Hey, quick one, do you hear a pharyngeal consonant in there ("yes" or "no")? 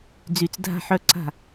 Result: yes